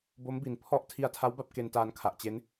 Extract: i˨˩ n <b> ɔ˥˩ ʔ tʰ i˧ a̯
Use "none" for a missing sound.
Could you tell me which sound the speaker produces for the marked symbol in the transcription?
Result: pʰ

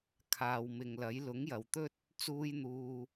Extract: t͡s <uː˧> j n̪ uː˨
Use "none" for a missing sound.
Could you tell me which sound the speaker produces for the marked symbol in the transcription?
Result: uː˧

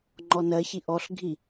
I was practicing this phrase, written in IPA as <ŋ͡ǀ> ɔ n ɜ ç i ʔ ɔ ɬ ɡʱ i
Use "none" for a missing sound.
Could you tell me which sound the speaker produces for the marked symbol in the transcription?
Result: ŋ͡ǃ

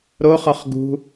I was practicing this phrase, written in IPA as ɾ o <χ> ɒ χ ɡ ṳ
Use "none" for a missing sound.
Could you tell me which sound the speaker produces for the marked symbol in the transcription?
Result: χ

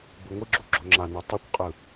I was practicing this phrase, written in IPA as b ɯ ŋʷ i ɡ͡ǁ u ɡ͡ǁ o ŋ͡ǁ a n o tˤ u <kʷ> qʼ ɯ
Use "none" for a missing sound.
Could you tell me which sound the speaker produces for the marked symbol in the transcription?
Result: kʷ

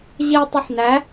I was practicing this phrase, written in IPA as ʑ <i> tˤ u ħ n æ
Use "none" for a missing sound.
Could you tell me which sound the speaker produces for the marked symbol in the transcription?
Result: i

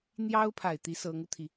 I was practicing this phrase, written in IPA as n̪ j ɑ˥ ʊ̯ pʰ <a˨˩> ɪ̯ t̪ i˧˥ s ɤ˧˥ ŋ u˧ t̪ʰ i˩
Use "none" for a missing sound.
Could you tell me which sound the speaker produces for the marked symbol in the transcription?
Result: a˨˩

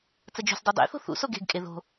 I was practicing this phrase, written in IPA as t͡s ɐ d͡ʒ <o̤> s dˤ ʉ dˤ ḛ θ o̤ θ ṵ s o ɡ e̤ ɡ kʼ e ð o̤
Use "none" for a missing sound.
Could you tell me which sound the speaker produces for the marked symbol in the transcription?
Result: o̤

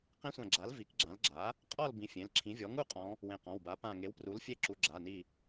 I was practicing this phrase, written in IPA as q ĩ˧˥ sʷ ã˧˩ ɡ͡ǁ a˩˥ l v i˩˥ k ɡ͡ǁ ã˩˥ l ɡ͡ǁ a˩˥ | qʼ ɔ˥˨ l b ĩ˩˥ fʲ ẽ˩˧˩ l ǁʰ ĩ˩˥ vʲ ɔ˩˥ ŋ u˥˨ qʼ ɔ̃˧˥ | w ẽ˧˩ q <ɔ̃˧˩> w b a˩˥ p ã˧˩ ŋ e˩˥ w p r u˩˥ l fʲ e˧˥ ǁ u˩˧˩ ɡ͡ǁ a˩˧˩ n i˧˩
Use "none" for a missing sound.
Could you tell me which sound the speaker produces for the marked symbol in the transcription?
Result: ɔ̃˩˧˩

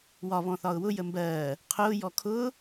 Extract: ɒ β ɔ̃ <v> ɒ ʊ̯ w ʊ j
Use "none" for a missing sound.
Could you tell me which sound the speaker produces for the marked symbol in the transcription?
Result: θ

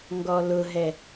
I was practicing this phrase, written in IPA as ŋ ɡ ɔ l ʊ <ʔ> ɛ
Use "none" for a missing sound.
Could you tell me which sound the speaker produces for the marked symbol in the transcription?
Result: ɦ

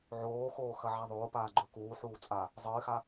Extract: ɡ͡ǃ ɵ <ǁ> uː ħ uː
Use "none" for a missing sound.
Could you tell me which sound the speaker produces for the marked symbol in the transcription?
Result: k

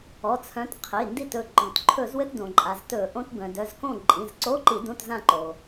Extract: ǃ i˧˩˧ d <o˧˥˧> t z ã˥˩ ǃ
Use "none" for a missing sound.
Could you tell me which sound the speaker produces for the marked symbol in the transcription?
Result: õ˧˥˧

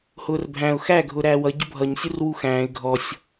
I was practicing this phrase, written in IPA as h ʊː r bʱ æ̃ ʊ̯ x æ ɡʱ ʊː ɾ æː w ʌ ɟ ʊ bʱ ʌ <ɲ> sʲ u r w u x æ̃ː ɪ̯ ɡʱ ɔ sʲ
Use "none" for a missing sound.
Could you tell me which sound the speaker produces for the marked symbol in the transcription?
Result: ɲ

